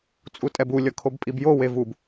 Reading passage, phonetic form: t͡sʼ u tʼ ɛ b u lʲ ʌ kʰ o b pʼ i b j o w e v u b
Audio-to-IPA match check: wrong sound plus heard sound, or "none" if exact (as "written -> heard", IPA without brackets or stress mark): none